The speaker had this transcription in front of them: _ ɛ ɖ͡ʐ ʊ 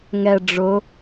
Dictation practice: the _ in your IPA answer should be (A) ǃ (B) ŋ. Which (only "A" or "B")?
B